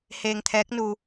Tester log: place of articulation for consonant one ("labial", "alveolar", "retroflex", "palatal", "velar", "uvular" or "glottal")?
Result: glottal